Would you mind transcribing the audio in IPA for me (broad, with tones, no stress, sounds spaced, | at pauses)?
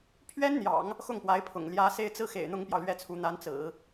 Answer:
pʰ ɥ ɛ˥ n n̪ j ɑ̰˨˩˦ ŋ | x ʊ˥˩ ŋ p w a˧˥ ɪ̯ pʰ ʊ̰˨˩ ŋ l j ä˧˥ s e˥ ɪ̯ t͡s ɹ̩˥ x ḛ˨˩ ɪ̯ n̪ ʊ˥ ŋ p j ɑ˨ ʊ̯ l ɥ ɛ˥˩ t͡sʰ u˧˥ n̪ a˧˥ n t͡s ɹ̩˨˩˦